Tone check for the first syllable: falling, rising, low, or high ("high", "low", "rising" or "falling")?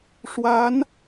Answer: rising